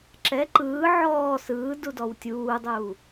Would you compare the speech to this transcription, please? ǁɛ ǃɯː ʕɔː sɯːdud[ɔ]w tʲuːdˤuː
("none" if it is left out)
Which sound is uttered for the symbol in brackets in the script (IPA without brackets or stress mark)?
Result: ɔ